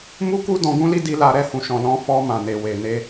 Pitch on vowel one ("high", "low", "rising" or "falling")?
high